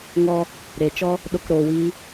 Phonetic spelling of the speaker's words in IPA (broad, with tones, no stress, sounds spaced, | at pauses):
ŋ ɔ˦ | ɾ e˨ t͡ʃ ɔ˦ | ɗ o˧ k ɾ oː˨ w iː˧